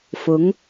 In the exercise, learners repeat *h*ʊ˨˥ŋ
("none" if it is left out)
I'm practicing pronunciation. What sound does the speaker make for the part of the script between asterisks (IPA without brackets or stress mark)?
f